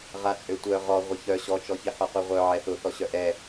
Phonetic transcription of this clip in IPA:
ʁ a t͡sʼ ø tʷ œ ʁ ɔ ʁʷ ɪ ç œ ɕ ɔ t͡ʃ ɔ ç i ħ ɔ q u ʁʷ œ ʕ ɛ θ ʊ θ ɔ ɕ œ ʔ ɛ

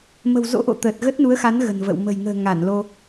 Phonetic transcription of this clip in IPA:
m ə̤˨˩ w z o̰˧˥ ʔ o̰˧˨ t̪ əː˨˩ t̚ ɣ ə˦˥ t̚ n u˨˦ ə̯ x a˨˦ n ɣ ə̤˨˩ n v ə̰˧˨ w m ə̤˨˩ j ŋ ə̤ː˨˩ ŋ a˧˩ n l o˧

